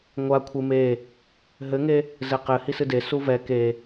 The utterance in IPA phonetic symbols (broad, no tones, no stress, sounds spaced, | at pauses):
ŋʷ a kʷʰ ɨ m e | ɦ ɘ ŋ e | z ɘ q ɘ h i s ɨ d e s u v ɛ k e